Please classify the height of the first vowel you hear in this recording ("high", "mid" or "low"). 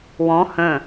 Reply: mid